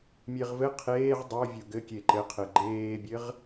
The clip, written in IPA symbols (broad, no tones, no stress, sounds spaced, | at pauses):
mʲ e ʁ v ɘ qʰ eː ʁ dˤ o vʲ o ɡ ɘ kʲ e ǃ ɘ qʰ ɘ ɡ͡ǃ eː bʲ ɘ ʁ